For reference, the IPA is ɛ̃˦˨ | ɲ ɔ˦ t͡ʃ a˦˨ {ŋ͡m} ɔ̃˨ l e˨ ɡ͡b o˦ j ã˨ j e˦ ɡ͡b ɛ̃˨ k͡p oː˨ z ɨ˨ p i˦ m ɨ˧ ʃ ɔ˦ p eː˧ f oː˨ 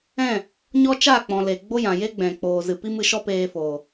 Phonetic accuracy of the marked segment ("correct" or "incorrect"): incorrect